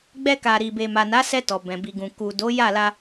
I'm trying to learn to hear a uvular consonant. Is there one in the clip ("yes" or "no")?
no